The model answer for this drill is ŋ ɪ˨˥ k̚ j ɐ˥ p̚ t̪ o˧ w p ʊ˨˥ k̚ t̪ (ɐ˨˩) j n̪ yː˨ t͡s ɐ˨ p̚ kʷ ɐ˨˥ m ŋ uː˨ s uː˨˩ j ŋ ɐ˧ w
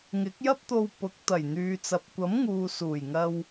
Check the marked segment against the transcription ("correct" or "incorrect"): correct